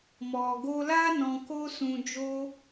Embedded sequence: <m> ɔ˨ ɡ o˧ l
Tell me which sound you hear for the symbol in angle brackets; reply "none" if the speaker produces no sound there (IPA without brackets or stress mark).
m